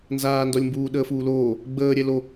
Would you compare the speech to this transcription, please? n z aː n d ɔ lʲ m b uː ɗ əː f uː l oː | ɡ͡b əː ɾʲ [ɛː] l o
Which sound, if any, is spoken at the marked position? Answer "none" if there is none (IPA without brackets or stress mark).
ɛ